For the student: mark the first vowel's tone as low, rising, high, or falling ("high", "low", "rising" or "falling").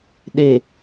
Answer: low